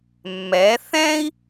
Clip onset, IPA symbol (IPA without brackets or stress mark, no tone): mː